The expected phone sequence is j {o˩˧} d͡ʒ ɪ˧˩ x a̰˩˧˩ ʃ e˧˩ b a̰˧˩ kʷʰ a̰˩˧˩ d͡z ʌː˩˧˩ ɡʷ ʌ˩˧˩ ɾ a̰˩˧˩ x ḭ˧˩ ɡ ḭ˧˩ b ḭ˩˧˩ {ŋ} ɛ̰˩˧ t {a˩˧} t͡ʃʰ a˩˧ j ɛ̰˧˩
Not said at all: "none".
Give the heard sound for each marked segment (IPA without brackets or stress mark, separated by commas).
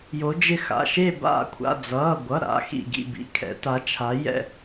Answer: o˩˧, kʰ, a˩˧